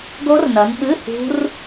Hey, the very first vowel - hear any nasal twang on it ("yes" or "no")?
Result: no